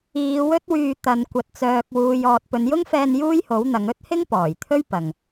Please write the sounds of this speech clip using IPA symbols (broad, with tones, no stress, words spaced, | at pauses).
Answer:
iː˨˧ wɵ˥t̚wyː˧ t̪ɐ˨˧n kʷɐ˨t̚t͡sœː˨k̚wuː˨j ɔː˧t̚ pɵ˨˧njʊ˥ŋfɛː˧n juː˥jho˨˥wn̪ɐ˨˧ŋ ɵ˥t̚hɪ˥ŋ pɔː˨˩jt̪ʰɵ˥ɥ pɐ˨ŋ